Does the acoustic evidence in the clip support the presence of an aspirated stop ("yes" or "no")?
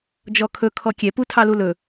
yes